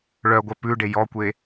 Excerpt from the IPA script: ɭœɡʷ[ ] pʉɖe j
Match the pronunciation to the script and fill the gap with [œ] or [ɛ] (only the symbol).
œ